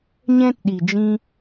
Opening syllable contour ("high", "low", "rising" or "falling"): high